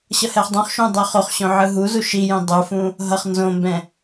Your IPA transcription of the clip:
ɕ ʌ h ɛ χ dˤ ũ χ ʃ ũ dˤ o χ o χ ɕ õ ʕ ɯ ɦ u z u ʃ i j ĩ dˤ u f ũ | ɦ ʌ χ n z õ m b ɛ̃

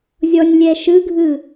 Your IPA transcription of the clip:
zʲ ɔ nʲ lʲ ɛ ʃ ɯ ɡʱ ɯ

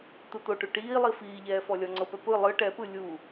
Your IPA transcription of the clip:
t̪ ɯ t̪ o ʈ u ʈ iː lˠ i f iː ʎ ɛː f ɔ lʲ ɔ ŋ͡ǀ ɤ p ɛ p ɯ lˠ ɯ ʈ ɛ p ɯ lʲ u

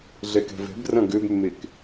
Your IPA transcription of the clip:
ɮ ɛ k ɛ̤ v ɛ̤ b r ɐ̃ ɡ ø b mː e k

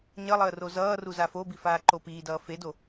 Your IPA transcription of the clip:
ɲ ʌ lˠ əː r o z ʌː r u z a f o b i f aː ǃ o p iː d ʌː f e d o

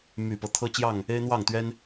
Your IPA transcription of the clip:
m y˨˩ p ɤ˨˦ t̪ʰ ɤ˦ t͡ɕ j ɑ˥˨ ŋ | e˦ ɪ̯ n̪ w ɑ˥˨ ŋ t̪ ɥ ɛ˦ n

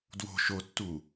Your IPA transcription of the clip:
d w o̤ ʃ o tː u

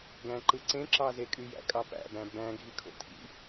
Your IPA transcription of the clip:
ɡ æ̃ ǃ ɯ ǀ ẽ ǁ ɑ z e kʼ y j æ̰ kʼ ɑ p æ̰ b æ̃ b æ̃ ɡʱ i kʰ o̰ tʰ ḭ

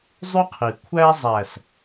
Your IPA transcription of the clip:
zˤ y˦ qʰ i˨ kʷʰ æ˦ zˤ æ˨ s

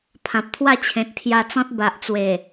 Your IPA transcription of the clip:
pʰ ã˨ p̚ t̪ʰ w a˥˧ t͡ɕʰ ẽ˨ t̚ t̪ʰ j a˧ t͡s ɔ̃˦ t̚ b a˨ ʔ t͡s w e˨˩

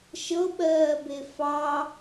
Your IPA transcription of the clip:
ʃ ɤ ɓ ɜː b e f ɑ

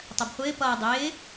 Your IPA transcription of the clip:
tˤ ɜ b χʷ ɪː p ʌː dˤ ɪː

